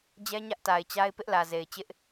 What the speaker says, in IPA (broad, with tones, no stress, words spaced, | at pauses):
d͡ʑɛ˦ɲä˦ʔ ta˨ɪ̯t͡ɕa˦ɪ̯ pɪ˦ʔlä˨ze˨ɪ̯ t͡ɕɪ˦ʔ